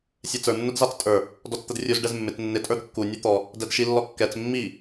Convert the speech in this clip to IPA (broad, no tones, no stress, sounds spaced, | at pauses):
sʲ ɛ t͡s ə˞ nː ʊ d z ɑ t͡s tʼ ə˞ | d ɔ t͡s t̪ ə d rʲ u z ɖ ɛ z mː ɪ t͡s nː ɪ tʼ ə˞ d kː u nʲ ə˞ t̪ ɔ | d ɛ d ʃ i lː ɔ kː ɛ t͡s mː i